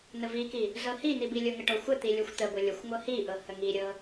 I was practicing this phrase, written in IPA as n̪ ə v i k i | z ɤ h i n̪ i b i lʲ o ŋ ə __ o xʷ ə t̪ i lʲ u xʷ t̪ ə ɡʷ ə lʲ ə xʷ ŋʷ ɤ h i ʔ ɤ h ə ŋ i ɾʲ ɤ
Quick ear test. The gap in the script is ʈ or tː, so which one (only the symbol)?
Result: ʈ